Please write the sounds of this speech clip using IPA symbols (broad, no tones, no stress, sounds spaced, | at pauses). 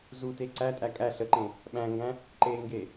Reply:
z u t e ǀ æ tʼ æ kʼ æ ɬ ə ǃ ẽ | ɓ æ̃ ŋ ɡ æ̃ | ǃ e ŋ ɡ e